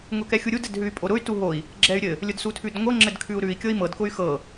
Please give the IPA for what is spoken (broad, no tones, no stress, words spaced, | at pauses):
ŋʊkɛxʲuɾʲud ɘdɦʉy̯pʼoɾʊy̯ tuɦoi̯ | ɡ͡ǁɛy̯ɾʲɘ | lʲʊdsutʰʉdŋʷɤ ŋ͡ǁɘdkʰʉu̯ɾʉi̯ kʲɤi̯mɤd kʊy̯xɤ